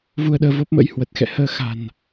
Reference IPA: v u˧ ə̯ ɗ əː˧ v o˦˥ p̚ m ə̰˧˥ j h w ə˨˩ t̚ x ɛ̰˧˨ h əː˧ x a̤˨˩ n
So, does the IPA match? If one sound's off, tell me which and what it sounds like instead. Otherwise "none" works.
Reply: none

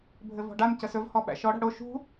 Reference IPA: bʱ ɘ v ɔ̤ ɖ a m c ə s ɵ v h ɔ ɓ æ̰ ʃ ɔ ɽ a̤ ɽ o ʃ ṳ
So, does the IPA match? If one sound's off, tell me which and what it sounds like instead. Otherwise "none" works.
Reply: none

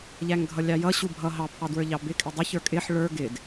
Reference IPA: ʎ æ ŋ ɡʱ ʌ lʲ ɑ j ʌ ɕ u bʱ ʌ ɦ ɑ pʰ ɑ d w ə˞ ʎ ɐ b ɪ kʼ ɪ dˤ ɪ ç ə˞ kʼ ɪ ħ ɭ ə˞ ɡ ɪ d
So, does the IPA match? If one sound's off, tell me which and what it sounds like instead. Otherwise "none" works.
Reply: ɐ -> ɑ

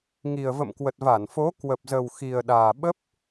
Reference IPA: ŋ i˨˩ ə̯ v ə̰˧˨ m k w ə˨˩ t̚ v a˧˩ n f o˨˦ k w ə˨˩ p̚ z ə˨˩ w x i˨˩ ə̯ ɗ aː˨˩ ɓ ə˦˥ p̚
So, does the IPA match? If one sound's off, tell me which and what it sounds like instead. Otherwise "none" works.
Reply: none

